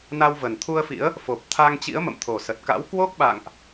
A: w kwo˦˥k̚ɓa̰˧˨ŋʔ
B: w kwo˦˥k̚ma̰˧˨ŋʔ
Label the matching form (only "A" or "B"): A